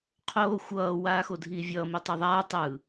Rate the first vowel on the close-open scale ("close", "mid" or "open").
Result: mid